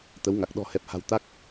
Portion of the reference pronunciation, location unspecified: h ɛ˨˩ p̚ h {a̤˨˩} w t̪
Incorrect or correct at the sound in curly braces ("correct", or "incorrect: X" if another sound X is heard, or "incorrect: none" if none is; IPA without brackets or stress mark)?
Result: correct